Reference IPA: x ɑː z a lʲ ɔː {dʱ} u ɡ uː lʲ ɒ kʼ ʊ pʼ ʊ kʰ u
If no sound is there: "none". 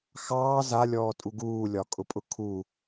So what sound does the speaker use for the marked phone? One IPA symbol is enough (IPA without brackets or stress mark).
tʼ